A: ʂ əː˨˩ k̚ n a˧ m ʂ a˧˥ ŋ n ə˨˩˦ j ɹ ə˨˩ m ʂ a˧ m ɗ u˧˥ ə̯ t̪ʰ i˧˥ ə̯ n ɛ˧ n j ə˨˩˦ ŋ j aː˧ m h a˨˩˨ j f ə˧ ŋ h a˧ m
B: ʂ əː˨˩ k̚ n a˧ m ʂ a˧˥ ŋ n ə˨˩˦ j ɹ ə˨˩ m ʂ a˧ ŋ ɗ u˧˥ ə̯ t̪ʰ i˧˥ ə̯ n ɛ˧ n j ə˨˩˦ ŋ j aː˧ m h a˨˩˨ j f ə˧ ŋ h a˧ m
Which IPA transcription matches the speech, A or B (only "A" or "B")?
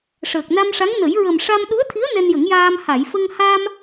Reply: A